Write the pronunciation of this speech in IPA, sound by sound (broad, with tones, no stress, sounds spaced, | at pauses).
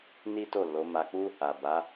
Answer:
n i˦ t o˦˨ l o˨˦ m a˧ k͡p u˦ | a˨ b a˨˦